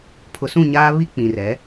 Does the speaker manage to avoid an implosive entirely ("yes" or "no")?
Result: yes